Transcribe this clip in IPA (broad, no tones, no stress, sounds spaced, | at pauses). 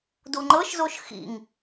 d u ŋ͡ǃ ɤ ʃ z o ʃ x ḭ ŋ